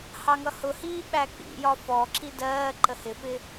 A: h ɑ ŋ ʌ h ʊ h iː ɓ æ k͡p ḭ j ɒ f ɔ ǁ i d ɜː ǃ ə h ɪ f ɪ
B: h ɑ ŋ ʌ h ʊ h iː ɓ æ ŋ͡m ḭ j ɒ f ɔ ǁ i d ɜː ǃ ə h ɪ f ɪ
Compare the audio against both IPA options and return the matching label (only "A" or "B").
A